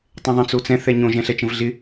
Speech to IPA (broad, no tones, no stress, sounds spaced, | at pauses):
tˤ ɛ̃ ðˤ ə̃ t͡s o t͡s ɛ̃ θ ɛ ɲ õ ʒ ɛ̃ ɬ ɛ t͡ʃ ə̃ v ɮ ɪ